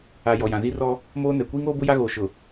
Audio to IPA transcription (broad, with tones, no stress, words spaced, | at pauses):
a˨ jɔ˨jã˨zi˦rɔ˦ | moː˦nɛ˨ kʷiː˦ŋoː˦bʊ˦ ja˦ɣoː˨ ʃʊ˨